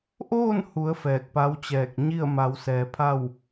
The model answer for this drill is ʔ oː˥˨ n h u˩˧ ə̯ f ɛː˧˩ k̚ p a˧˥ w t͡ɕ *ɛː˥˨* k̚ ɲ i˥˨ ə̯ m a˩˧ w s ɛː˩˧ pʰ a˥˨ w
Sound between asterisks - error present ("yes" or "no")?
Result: yes